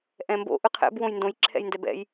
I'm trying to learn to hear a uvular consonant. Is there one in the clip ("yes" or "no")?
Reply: yes